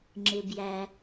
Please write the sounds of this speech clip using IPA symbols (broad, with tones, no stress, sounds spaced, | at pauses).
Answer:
ŋ͡ǁ ɪ˩ b j æ˩